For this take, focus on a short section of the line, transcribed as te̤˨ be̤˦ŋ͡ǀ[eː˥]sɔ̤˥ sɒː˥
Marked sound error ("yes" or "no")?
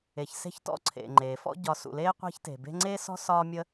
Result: no